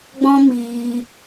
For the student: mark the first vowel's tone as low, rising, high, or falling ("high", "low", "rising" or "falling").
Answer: high